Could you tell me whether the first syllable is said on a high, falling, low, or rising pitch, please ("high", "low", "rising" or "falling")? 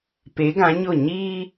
rising